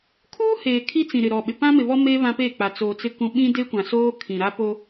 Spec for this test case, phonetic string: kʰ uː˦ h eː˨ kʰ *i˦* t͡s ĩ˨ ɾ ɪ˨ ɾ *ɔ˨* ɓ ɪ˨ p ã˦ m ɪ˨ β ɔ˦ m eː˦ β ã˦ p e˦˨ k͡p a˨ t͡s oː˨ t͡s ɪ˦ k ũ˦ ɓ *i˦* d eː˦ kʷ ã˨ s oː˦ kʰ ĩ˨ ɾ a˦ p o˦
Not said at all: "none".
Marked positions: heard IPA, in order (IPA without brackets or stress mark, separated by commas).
i˦, ɔ˨, ĩ˦